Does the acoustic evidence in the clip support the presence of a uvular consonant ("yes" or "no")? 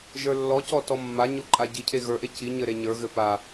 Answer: no